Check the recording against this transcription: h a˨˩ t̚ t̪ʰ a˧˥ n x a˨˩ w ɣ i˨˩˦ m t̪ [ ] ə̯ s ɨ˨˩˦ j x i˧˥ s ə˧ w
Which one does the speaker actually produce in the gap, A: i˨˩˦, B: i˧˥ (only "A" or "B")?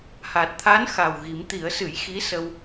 A